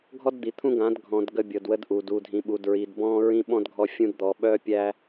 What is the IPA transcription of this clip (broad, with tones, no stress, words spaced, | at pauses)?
ɡʱɔ˦dd̪i˨t̪ʰũ˦ɡã˨˦d ɡʱɔ̃˨d ɡə˦bʲɤ˨dwə˦d ʔu˨d u˨dʱĩ˨ɓu˨d ɹi˨dbɔ̃˦ ɹĩ˦ɓɔ̃˦d ɡʱɔ˦fʲũ˦d d̪ɔ˨ɓœ˦pʲæ˦